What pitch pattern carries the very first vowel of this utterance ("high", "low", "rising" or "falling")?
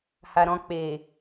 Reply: low